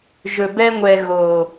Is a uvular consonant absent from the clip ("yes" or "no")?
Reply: yes